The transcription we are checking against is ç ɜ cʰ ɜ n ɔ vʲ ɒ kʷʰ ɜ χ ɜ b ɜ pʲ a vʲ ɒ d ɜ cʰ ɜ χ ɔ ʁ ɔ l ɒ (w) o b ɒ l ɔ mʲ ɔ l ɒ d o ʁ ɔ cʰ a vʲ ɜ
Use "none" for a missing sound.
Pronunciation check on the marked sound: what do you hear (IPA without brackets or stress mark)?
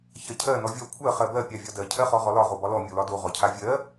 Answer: ʁ